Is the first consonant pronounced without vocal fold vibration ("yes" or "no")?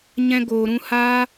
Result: no